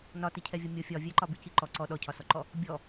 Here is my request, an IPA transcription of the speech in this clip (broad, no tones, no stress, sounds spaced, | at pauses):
n ɒ t i cʰ ɛ vʲ ɔ mʲ ɔ fʲ ɒ vʲ ɛ ǃ ɒ b i c i ǃ ɔ ǀ ɔ ɗ ɔ cʰ ɒ s ɔ ǃ ɔ | bʲ ɔ